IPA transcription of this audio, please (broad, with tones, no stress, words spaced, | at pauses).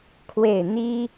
kʰwe˥˩ɪ̯ n̪i˥